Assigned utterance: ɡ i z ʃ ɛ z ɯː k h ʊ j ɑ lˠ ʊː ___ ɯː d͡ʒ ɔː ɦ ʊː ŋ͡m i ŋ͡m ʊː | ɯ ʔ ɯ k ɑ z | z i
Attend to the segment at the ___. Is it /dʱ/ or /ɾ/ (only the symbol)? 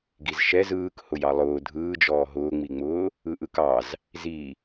dʱ